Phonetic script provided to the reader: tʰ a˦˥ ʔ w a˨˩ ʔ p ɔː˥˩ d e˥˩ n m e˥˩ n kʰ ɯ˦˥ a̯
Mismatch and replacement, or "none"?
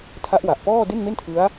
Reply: kʰ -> tʰ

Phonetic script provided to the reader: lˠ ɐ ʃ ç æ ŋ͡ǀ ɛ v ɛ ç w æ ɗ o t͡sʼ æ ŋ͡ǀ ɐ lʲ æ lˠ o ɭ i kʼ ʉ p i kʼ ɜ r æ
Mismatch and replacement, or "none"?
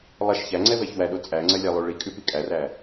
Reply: ɜ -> æ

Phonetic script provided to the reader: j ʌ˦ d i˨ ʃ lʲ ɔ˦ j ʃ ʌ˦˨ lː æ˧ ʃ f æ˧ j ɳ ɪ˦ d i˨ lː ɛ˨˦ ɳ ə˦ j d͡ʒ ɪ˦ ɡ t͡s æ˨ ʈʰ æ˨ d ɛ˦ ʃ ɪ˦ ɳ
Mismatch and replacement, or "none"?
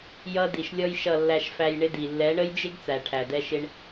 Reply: none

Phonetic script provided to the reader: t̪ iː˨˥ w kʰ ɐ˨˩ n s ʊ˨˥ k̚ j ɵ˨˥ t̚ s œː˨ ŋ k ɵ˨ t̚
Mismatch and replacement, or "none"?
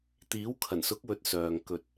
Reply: j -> w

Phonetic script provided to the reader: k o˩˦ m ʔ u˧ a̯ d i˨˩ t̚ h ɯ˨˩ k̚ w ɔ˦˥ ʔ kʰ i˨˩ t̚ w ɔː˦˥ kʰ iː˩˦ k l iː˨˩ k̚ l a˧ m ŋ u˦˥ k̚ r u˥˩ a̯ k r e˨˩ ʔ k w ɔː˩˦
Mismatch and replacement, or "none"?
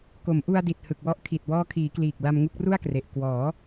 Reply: none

